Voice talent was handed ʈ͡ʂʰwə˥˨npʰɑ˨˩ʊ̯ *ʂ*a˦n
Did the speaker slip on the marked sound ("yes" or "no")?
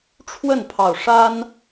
no